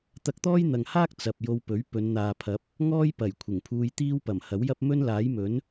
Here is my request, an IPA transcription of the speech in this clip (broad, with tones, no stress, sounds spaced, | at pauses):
t̪ ɐ˧ k̚ t̪ ɔː˥ j n̪ ɐ˨ ŋ h aː˥ k̚ t͡s ɐ˨ p̚ j o˧ w p ɵ˨˥ ɥ p ɵ˨˧ n n̪ aː˨ pʰ ɐ˨˥ p̚ | ŋ ɔː˥ j p ɐ˨˩ j kʷʰ ɪ˨˩ ŋ pʰ uː˧ j t̪ iː˥ w p ɐ˨˩ m h ɐ˨˥ w j ɐ˥ p̚ m ɵ˥ n l aː˨˥ j m ɵ˨˥ n